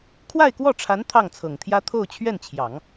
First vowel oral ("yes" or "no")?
yes